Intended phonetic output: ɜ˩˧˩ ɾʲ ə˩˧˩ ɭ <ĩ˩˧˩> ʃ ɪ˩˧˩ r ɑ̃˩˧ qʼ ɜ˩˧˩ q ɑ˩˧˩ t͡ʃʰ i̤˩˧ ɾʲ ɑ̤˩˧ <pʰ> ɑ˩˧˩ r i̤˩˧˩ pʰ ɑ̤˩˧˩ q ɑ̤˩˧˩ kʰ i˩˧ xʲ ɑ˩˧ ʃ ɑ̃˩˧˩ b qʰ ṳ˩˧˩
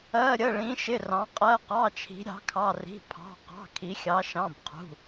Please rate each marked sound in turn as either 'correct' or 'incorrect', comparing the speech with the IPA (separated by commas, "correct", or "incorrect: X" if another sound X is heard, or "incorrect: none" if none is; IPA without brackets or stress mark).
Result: incorrect: ĩ˩˧, incorrect: kʰ